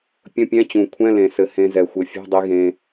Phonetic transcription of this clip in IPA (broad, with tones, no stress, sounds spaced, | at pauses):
pʲ ə̃˧˥˧ pʲ ɛ̃˧˥˧ t͡ɕ ũ˨˩ kʷʰ ɛ̃˧˥˧ l ẽ˨˩ s ɘ˨˩ h ẽ˧ z ɛ˨˩ xʷ ɘ˨˩ fʲ ɛ̤˧˥˧ dˤ i˧ ɣ ẽ˧